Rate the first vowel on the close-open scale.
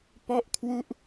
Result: mid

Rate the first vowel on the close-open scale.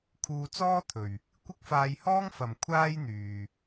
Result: close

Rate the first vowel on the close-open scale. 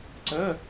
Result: mid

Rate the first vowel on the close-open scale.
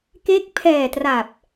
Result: mid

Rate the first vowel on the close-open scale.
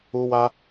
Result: close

